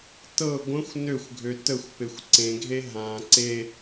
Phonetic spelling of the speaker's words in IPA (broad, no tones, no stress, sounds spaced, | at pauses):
t ɤ ɡʷ ə̃ xʷ n ø xʷ ɡʱ ø t ə xʷ p e xʷ ǀ ẽ ɡʱ e ɦ ã ǀ e